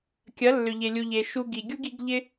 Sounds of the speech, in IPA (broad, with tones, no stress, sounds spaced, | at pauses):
kʲ ɐ˨˦ lː ʏ˨ ʎ e˨ lʲ u˨ ʎ e˨ ʃ u˧ ɡ i˨ ɡʲ u˦ ɡ i˨˦ ɡ ʎ ɪ˦